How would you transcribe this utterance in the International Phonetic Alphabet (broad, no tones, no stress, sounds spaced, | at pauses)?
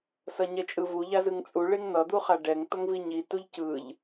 s ʌ ɲ ɛ t͡ʃʼ ɯ v u ʎ a z ɯ ŋ t͡sʼ u ɭ e ŋ n̪ ʌ d̪ u χ a ɖ ɛ ŋ t̪ ʌ ŋ v i ɲ i t u ʎ c ɯ ʎ